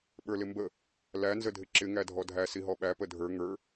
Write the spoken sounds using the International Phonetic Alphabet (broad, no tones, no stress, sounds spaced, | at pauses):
ɓ ə˞ l ɪ m b ə | l æ n z ə dʱ ɪ ǁ ɪ ŋ æ dʱ ɔ dʱ æ s i ɦ ɔ ɓ æ p ə dʱ ə˞ ŋ ə˞